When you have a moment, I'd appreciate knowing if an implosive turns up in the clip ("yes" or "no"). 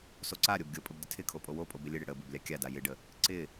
no